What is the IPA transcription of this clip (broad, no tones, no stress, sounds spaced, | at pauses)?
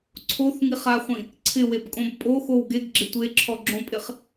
ǀʰ o θ ŋ i χ a χʷ ĩ | ǀʰ ɪ w e b kʼ õ b pʼ o x o w ɡ e ɡ ɡ͡ǁ ɪ tʷ e ǁʰ ɔ ɡ͡ǁ õ pʼ ɪ χ